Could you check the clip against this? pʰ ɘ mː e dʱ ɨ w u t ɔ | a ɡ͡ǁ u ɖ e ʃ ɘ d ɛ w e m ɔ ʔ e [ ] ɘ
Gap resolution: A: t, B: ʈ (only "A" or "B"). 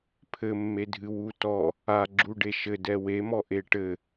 B